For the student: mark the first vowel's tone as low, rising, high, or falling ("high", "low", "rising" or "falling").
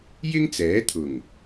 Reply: high